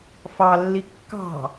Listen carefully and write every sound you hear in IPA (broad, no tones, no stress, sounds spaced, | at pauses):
f ɑ lː i kː ɑ̤